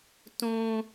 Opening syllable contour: high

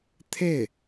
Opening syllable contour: falling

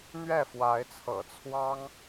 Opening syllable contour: falling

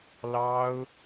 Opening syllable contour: high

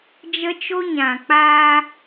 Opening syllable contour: high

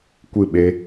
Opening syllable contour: falling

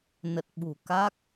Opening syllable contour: low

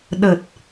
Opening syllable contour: low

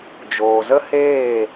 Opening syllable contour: low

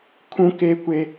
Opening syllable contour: high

